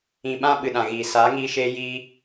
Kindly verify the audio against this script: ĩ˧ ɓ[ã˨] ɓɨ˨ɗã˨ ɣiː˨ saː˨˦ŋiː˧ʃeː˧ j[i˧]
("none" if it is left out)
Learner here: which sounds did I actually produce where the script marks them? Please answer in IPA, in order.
ã˦, i˧

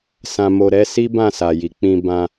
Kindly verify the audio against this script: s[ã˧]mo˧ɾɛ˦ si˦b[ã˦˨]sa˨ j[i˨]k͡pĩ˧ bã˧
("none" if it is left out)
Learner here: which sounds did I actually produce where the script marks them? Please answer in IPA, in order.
ã˧, ã˦˨, i˨

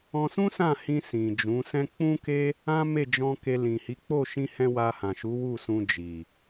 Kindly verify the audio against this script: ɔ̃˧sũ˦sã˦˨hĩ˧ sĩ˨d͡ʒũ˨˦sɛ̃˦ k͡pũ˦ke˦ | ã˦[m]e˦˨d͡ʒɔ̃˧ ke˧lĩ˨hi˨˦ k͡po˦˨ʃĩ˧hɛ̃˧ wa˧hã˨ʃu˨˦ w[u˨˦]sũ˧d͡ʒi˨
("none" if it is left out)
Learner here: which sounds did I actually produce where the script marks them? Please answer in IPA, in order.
m, u˦˨

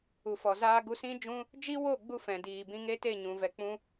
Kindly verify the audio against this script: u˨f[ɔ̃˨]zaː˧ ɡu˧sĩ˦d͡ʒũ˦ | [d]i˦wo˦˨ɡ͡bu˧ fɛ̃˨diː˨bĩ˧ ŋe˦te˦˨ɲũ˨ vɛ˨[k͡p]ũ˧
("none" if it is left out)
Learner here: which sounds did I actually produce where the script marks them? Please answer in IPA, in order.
ɔ˨, d͡ʒ, k͡p

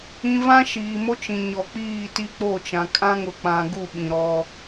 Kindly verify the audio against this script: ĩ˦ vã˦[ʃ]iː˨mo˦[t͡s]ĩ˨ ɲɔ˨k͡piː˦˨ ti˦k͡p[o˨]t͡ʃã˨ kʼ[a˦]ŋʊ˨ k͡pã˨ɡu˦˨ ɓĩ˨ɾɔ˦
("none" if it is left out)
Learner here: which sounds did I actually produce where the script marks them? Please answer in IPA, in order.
ʃ, t͡ʃ, o˦˨, ã˦

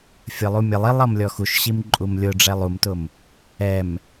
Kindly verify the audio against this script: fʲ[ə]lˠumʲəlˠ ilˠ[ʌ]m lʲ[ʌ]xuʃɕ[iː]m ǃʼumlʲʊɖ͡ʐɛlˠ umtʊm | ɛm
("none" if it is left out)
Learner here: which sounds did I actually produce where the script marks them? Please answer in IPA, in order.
ə, ʌ, ɔ, i

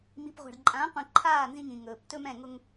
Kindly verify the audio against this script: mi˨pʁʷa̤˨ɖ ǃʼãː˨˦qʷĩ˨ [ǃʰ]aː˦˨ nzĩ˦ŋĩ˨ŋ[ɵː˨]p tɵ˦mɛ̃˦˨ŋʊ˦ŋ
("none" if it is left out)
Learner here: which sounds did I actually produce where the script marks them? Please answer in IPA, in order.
ǃʰ, ɵː˨

